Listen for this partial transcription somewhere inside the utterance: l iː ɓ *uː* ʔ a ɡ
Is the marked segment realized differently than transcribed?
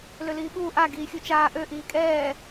no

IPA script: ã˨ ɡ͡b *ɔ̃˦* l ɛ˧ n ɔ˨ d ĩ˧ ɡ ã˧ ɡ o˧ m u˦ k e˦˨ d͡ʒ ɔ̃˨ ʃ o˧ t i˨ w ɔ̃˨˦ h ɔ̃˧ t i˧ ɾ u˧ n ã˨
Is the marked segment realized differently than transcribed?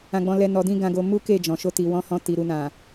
yes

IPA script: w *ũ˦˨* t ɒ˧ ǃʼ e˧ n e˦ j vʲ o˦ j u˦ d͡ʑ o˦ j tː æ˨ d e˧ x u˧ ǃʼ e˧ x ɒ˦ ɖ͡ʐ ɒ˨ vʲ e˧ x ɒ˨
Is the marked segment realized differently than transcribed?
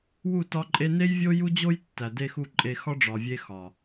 yes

